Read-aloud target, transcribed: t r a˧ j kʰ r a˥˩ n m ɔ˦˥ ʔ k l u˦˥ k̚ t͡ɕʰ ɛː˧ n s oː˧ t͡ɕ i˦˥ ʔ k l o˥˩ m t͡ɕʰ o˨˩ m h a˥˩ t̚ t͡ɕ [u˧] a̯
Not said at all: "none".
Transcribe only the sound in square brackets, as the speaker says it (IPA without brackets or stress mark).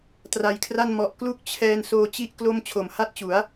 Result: u˩˦